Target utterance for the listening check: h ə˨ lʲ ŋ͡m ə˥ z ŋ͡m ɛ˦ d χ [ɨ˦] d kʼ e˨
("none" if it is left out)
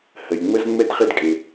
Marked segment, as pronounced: e˦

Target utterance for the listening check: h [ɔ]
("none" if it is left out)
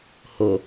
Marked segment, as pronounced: o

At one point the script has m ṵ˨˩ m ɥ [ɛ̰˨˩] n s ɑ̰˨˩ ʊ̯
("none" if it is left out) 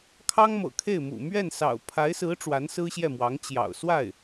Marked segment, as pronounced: ɛ˥˩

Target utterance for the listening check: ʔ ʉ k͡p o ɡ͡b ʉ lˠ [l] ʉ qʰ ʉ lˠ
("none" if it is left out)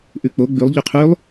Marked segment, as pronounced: ʎ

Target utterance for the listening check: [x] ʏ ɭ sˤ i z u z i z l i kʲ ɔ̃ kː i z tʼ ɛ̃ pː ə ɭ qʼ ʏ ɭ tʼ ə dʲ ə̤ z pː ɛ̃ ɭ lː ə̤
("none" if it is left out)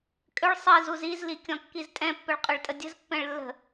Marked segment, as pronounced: kʼ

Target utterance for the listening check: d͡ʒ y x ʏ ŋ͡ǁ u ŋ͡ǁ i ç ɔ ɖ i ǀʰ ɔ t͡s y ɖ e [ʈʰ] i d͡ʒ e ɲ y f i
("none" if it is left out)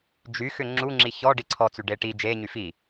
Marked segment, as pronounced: ʈ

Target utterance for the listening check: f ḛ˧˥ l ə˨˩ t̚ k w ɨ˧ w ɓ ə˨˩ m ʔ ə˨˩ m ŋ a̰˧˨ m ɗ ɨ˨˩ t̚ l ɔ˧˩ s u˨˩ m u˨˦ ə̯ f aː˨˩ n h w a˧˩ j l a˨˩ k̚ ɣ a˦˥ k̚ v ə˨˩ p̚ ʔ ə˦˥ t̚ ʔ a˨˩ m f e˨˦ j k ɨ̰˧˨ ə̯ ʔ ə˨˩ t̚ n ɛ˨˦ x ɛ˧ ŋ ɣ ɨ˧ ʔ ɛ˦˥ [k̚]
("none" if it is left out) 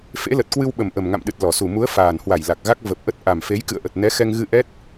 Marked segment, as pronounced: t̚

